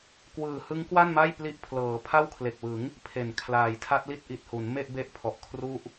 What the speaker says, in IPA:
kwɯː˨˩hɯ˦˥ŋ kwa˥˩nma˥˩j pli˥˩ʔ pʰlɤː˩˦pʰa˥˩w kʰle˨˩k̚wɯ˩˦ŋ | pʰe˨˩n kʰlaː˩˦jtʰa˦˥t̚li˥˩t̚ ʔi˨˩t̚hu˩˦n me˥˩ʔbe˦˥ʔpʰɔ˨˩ʔkʰru˦˥ʔ

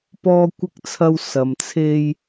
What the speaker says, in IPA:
pɔː˥kʷɪ˥k̚t͡sʰɐ˥w sɐ˧mt͡sʰe˥j

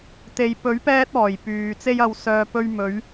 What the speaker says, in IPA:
t̪e˨jpɵ˨˥ɥ pɛː˥t̚ɔː˨˩jpyː˨ t͡se˧jɐ˨wsœː˨ pɵ˧ɥmɵ˨˧ɥ

